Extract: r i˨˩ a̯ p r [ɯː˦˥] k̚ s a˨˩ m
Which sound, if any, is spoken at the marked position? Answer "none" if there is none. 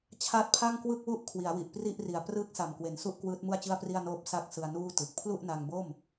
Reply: ɯː˦˥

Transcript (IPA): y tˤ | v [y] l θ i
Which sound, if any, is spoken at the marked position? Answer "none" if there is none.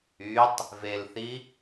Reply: e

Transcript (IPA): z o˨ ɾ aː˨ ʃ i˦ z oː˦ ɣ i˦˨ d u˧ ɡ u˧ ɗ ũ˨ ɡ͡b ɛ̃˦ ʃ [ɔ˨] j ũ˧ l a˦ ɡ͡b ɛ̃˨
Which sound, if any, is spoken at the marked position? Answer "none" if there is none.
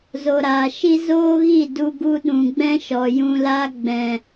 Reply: ɔ˨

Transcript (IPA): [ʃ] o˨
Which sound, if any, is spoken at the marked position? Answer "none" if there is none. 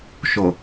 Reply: ʃ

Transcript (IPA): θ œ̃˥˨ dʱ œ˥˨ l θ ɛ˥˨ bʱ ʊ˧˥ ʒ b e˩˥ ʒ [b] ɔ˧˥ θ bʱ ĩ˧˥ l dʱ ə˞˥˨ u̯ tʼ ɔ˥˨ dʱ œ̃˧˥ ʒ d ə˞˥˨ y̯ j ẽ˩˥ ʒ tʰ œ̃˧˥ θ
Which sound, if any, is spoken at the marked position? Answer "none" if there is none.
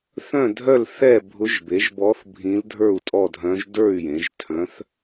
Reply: b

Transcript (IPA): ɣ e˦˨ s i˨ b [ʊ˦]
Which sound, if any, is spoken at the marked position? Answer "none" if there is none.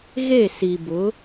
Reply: ʊ˨˦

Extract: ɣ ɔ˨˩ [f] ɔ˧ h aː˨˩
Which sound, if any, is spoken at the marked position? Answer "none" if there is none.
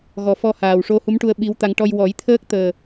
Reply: f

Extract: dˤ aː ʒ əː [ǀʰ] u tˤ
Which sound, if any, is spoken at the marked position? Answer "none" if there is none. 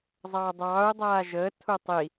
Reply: tʰ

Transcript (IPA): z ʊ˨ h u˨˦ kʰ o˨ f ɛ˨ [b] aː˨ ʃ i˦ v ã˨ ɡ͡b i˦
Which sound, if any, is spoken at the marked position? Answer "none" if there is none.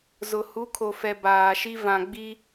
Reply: b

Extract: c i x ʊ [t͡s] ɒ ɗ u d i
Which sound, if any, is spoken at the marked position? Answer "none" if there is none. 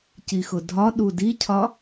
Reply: dʱ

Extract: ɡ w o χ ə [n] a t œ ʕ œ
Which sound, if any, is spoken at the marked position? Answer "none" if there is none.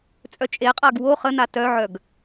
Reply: n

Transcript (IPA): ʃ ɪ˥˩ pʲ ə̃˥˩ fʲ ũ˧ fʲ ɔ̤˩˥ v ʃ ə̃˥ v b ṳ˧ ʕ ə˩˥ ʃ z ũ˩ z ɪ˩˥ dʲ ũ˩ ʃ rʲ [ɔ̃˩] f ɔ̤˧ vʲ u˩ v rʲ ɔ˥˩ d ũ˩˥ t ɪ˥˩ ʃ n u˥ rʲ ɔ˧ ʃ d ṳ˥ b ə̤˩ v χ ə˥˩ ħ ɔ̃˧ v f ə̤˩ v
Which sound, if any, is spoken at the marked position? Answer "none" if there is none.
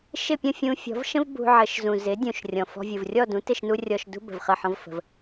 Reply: ɔ̃˩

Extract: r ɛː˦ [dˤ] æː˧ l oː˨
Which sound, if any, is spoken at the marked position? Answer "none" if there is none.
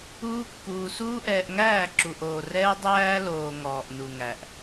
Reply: dˤ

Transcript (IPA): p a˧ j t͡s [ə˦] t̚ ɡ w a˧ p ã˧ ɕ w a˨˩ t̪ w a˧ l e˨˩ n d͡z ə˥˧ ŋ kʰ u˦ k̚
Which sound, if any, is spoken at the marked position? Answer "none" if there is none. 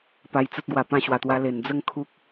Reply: ə˦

